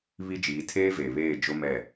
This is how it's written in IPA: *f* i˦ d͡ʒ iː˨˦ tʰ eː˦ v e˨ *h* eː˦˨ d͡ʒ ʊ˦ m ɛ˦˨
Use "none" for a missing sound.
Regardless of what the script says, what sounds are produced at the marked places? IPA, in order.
β, β

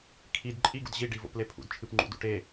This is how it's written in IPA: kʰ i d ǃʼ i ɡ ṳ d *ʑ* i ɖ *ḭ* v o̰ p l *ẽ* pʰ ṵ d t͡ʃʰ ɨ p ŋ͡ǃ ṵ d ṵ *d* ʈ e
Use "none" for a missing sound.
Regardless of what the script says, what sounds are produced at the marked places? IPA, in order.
ʑ, i, e, none

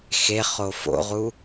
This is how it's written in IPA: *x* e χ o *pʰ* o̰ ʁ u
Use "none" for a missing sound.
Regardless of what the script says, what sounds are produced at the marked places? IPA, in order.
x, f

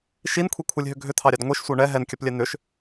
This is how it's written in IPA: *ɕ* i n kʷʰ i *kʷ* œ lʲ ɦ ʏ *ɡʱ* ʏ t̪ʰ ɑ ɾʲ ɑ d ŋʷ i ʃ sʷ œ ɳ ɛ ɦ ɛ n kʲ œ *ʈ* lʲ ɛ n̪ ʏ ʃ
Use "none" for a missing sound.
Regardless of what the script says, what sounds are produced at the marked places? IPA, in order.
ʃ, kʷʰ, ɡʱ, p

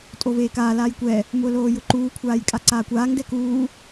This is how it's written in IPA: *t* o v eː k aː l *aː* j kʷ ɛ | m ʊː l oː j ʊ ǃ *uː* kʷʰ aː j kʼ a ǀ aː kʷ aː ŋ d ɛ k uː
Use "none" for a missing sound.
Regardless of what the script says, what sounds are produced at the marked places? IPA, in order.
tʼ, aː, uː

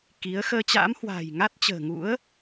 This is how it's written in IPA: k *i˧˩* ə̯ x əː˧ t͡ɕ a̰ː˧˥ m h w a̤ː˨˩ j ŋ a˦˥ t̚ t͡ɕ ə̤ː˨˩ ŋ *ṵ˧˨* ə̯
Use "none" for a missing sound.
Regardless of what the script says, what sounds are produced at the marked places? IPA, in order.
i˨˦, ṵ˧˥

